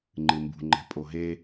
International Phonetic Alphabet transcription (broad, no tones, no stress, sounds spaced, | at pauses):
ŋ͡ǃ ɨ m b ṳ ŋ͡ǃ ɛ̤ pʼ o ɦ e